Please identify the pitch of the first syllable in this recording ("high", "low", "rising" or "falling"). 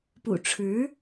low